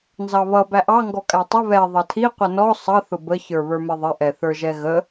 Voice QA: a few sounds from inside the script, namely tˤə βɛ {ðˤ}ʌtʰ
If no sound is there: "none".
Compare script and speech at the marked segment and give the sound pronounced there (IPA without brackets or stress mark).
ðˤ